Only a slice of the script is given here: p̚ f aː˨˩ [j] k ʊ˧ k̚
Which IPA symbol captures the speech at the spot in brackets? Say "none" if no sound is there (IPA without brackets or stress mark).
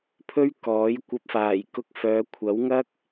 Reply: j